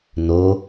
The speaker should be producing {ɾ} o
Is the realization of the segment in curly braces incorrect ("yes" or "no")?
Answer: yes